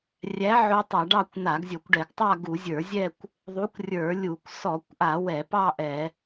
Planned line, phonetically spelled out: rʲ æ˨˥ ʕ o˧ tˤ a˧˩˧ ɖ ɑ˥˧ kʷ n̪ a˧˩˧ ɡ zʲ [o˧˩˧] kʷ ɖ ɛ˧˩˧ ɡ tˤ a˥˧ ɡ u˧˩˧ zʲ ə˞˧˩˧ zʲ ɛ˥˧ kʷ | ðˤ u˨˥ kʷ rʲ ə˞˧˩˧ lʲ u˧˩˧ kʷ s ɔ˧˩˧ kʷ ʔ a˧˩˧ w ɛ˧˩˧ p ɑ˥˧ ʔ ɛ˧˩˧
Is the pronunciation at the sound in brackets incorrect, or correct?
correct